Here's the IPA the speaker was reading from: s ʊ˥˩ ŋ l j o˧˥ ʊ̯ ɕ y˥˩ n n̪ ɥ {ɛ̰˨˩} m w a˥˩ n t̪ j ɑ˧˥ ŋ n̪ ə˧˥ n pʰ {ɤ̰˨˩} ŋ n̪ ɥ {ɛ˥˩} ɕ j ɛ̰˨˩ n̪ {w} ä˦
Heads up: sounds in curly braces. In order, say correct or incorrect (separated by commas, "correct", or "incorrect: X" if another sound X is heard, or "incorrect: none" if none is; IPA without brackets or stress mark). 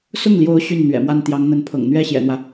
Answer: correct, correct, correct, correct